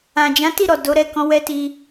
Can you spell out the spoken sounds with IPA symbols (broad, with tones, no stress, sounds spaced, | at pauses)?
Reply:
ã˨ d͡ʒ ã˨˦ t i˦˨ ɾ ɔ˨ d o˨˦ ɾ ɛ˦˨ k ɔ̃˨˦ w ɛ˦ t i˧